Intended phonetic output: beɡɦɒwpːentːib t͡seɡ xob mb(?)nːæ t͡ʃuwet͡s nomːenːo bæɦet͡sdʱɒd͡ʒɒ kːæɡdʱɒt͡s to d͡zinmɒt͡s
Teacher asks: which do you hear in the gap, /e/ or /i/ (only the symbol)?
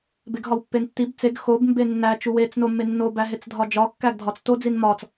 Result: e